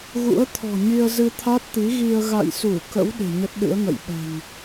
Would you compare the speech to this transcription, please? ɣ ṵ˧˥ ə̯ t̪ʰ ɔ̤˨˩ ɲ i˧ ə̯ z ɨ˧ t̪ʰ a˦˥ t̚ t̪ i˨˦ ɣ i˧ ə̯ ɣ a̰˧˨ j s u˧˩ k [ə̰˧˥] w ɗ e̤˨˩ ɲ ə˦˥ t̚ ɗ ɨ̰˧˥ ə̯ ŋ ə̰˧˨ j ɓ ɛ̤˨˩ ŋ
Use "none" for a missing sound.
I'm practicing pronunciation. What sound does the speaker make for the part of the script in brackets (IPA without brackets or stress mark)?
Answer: ə̰˧˥